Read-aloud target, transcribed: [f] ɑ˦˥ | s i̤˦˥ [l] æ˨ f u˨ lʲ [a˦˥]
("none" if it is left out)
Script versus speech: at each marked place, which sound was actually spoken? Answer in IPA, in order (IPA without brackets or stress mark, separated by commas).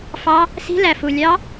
f, l, ɑ˦˥